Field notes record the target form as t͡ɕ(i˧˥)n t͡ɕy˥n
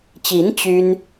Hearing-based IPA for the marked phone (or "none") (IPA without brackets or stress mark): i˧˥